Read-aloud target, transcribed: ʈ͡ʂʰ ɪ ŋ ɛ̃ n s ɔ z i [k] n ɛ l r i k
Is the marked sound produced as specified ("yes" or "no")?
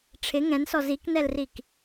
yes